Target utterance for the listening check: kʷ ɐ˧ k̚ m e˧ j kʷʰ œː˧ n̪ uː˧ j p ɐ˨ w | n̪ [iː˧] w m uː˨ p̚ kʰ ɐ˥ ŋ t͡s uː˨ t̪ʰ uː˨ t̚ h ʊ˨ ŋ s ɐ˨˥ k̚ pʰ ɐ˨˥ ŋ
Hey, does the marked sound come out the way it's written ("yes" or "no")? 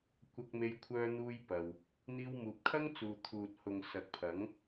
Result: yes